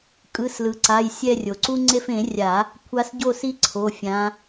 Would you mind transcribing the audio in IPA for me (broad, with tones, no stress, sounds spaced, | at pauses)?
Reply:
kʼ ɯ˩˧˩ s l ɯ˩ ǀ a˩˧˩ j sʲ ɛ˦˨ rʲ o˩ ǀ u˦ ŋ͡ǀ e˦˨ f ẽ˨˩˦ rʲ a˨˩˦ | kʷʰ a˨˦ s ɟ o˦˨ s i˦ ǀʰ o˩˧˩ fʲ ã˨˦